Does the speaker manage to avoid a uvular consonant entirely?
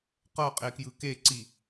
no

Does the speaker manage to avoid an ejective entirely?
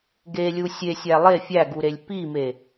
yes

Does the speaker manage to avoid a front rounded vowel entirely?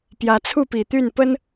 no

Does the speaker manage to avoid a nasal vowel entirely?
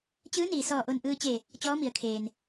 yes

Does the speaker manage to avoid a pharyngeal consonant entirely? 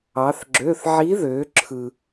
no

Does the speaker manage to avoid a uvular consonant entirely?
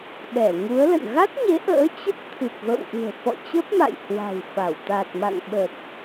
yes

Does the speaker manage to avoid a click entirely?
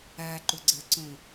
no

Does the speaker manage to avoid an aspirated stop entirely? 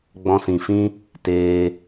yes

